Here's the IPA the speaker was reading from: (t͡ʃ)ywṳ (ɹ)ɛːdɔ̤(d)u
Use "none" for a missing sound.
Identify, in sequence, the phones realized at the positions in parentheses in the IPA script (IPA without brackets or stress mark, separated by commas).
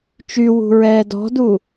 t͡ʃ, ɹ, d